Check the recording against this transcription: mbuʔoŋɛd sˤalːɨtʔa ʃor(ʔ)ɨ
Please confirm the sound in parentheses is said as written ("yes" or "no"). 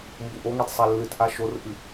yes